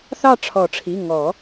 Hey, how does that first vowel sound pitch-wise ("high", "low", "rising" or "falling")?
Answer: falling